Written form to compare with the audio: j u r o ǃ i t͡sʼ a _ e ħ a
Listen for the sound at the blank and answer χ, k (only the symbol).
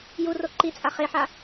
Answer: χ